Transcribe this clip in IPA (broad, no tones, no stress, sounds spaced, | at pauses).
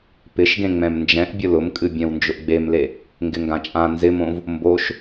p ɪ ʃ ɡ ẽ ŋ͡m ɛ̃ m n d͡ʒ ɛ̃ ʔ bʲ ʊ l ʊ m kʼ ɨ bʲ ɛ̃ w n d͡ʒ ʊ ʔ ɡ͡b e m l e | ŋ ɡ ɪ ŋ ɡ ã t͡ʃʼ ã n z ɪ m õ v | m b o ʃ